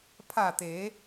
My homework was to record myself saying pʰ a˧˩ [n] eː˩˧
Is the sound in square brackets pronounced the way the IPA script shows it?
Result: no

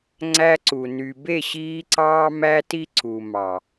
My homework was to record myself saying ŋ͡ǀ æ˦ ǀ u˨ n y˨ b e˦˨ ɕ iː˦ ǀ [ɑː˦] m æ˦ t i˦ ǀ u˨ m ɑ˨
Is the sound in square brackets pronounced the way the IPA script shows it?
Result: yes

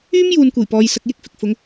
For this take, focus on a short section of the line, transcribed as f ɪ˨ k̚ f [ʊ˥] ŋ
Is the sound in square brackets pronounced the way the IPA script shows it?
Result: no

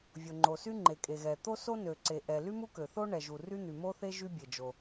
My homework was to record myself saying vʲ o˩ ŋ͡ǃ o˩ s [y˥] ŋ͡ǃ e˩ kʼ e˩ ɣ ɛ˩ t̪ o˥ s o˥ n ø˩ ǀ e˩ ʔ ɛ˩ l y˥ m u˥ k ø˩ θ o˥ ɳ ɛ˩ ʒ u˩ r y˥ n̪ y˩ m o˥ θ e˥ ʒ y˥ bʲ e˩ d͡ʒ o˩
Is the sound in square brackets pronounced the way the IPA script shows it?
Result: yes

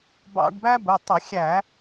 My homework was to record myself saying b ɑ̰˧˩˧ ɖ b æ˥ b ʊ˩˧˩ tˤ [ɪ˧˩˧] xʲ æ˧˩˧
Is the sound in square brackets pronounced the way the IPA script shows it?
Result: yes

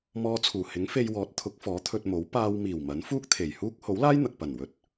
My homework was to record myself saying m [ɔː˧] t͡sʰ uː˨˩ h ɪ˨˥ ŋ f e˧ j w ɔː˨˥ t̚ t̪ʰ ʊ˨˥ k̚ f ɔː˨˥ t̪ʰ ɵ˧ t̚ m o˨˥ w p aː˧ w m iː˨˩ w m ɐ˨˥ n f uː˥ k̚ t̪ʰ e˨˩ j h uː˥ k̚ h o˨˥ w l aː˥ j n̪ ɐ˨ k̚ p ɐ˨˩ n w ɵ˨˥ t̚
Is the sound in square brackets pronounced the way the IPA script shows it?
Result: yes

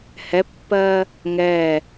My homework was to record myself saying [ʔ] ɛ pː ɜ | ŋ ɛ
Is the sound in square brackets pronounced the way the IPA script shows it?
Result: no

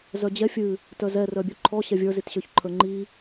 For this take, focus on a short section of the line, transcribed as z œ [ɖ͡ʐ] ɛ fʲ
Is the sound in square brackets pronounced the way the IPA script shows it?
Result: no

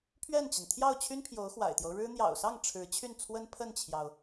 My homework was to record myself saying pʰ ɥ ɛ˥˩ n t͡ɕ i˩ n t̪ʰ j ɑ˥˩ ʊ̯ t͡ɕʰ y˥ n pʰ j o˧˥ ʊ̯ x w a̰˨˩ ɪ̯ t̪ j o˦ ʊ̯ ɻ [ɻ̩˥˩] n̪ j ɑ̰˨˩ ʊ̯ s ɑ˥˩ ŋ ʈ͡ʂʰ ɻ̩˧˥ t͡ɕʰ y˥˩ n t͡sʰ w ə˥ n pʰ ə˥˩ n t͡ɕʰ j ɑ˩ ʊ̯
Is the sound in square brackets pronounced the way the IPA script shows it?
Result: no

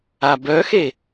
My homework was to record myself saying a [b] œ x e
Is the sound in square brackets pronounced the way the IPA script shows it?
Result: yes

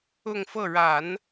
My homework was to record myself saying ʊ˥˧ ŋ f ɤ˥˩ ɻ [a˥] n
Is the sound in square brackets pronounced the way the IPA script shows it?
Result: no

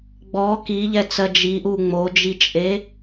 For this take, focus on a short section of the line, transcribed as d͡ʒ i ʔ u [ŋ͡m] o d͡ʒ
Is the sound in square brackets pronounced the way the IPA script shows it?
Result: yes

